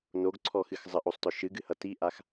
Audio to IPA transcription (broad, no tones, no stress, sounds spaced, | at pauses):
n o ɡ ǀʰ ɔ x ɨ x zˤ ə ʔ o sˤ t ɔ ʃ ɨ ɡ ɨ h ʌ t i ʔ a x